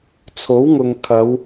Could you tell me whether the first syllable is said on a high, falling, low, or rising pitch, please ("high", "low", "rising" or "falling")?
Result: rising